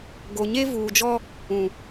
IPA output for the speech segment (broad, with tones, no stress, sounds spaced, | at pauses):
ɡ o˨ ɲ e˦ v uː˨ d͡ʒ ɔ˦ | ũ˨